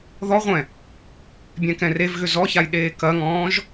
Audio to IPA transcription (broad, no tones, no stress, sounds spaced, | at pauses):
ð ɔ ʁʷ ɛ̃ | bʲ ɛ̃ k ɛ̃ r e v ɣ ʏ z ɔ ç a j ɗ eː k ɐ ŋ ɔ̃ː ʒ